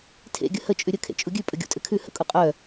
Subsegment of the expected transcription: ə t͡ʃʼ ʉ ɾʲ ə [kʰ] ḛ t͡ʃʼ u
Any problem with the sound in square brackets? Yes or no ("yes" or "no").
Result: no